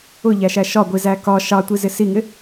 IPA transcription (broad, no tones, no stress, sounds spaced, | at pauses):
ʊ ʎ æ ʃ æ ʃ ɒ ɡʷ i z æ k ɒ ʃ ɑ tʷ i z ɪ s i ŋ ɪ